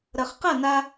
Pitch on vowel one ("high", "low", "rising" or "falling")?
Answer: low